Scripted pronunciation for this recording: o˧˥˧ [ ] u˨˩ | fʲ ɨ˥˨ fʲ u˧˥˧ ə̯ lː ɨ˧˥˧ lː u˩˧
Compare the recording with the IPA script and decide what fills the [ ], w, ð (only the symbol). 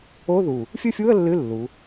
ð